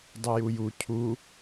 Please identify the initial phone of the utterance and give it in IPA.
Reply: dˤ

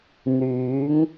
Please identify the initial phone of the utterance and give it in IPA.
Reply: n̪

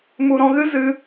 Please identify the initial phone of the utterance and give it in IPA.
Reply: m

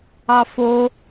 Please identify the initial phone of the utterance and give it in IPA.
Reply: ɑ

